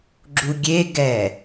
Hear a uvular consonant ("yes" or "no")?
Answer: no